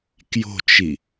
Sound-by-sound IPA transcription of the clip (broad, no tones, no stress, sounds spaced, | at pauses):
k j o̤ t͡ʃ i